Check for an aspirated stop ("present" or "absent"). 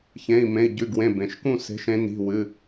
absent